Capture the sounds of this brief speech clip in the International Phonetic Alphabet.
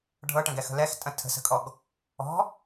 ɖʱ ɤ ʈ ə̃ ɡ ɛ x ə̤ l ɛ x tʼ ə̃ tʰ ə̤ s ə̤ kʼ ɔ ɡ | ɔ̤

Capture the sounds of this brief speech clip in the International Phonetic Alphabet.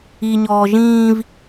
i ɲ ɔː ʒ ĩː v

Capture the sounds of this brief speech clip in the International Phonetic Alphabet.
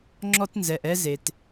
ŋ͡ǁ ɔ˧ t n z ɛ˩ ʔ ɛ˧ z e˩ t

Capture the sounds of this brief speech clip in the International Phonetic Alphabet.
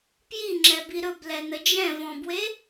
p j i ŋ͡ǁ ɛ b i ɾ ɵ b l ɛ n ə d͡ʒ ɛ̃ v ɔ̃ b w e

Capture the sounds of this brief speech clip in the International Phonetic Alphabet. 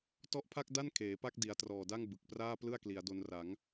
t ɔ˦˥ ʔ pʰ a˥˩ k̚ d a˥˩ n kʰ eː˩˦ p a˥˩ k̚ d i˩˦ a̯ t r ɔː˨˩ d a˥˩ ŋ b ɯ˨˩ k̚ p r aː˥˩ p l ɯ˥˩ a̯ k l i˩˦ a̯ d o˧ n r a˩˦ ŋ

